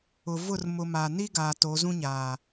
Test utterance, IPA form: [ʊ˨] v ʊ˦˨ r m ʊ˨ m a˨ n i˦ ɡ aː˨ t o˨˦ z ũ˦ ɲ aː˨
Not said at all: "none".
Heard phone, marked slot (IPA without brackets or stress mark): ʊ˨